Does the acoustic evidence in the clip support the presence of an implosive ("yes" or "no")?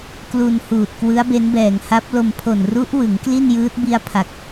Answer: no